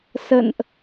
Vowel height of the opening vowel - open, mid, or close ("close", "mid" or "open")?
mid